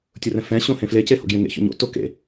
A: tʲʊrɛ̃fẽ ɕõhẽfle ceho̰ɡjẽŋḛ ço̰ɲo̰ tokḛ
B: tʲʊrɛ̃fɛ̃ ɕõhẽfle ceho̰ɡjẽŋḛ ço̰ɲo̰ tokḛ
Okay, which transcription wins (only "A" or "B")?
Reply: B